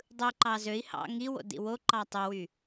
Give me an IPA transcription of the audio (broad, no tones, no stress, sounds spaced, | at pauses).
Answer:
dˤ ɯ ǃ ɑ z ø i̯ h ɑ̰ ŋ i w o̰ d ḭ w o ǃ ɑ tˤ ø w y